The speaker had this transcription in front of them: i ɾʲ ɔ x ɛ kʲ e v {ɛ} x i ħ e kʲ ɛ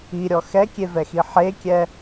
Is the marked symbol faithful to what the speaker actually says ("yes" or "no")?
yes